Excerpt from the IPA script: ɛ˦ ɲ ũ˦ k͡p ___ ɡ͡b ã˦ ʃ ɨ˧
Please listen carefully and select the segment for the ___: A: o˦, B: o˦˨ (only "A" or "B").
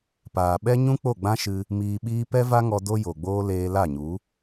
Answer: B